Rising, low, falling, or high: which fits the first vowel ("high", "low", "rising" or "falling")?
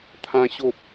high